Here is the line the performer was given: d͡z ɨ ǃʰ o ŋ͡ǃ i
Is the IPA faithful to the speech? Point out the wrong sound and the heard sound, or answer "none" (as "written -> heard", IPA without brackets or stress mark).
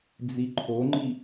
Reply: ɨ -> i